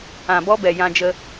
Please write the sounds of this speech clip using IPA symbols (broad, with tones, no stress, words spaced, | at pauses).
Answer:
ã˨bɔ˦bɛ˨ jã˧d͡ʒə˧